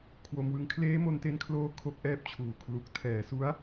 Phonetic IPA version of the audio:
kʰ w o˧ m w ɯ˧ ŋ kʰ l eː˦˥ m o˧ n t e˧ n kʰ l oː˧ kʰ o˦˥ k̚ ʔ ɛː˦˥ p̚ t͡ɕʰ uː˨˩ kʰ l u˨˩ k̚ tʰ ɛː˨˩ s u˦˥ a̯

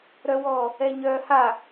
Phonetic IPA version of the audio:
ɾ œ w ɔ | ɛ ɲ œ h a

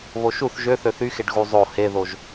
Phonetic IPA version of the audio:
β o ʃ u θ ʒ ø θ ø θ y x e ɖ ɣ u zˤ o h e ð o ʒ

